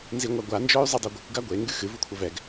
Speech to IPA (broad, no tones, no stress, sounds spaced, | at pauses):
n z i ŋʷ a ɡʷ a n d͡ʒ ɔ y̯ zˤ ɨ dˤ o ɡʷ ɨ kʷ ɡ a ɡʷ e ŋ ɡ ɨ x ɨ v u kʷʰ ɐ v ɛ ɡ